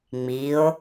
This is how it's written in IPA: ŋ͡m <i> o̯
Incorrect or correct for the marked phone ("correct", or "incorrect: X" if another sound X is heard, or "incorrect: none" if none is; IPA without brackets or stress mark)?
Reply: correct